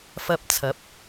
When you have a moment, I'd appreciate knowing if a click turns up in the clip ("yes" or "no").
no